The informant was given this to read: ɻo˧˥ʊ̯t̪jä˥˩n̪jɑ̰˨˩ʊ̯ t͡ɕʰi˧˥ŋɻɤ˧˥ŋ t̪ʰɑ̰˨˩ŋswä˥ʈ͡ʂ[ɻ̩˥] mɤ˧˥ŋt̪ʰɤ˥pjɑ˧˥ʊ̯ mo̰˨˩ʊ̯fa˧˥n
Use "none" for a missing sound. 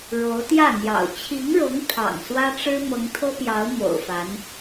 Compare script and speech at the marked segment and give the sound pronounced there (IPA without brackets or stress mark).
ɻ̩˥